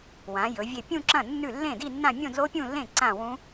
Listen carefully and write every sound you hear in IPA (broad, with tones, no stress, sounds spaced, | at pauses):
w ã˩˧ j ɵ˩˧ vʲ e˧˩ pʲ ũ˥˧ ǁ ɐ̃˥˩ nː ʉ˥˩ lː ẽ˥˩ d i˥˧ nː ã˥˧ mʲ õ˥˧ d l o˦˥ pʲ ũ˥˧ lː ẽ˥˩ ǀ ã˥˧ w ũ˦˥